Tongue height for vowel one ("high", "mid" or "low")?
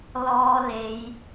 mid